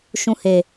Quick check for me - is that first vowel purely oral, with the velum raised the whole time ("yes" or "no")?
no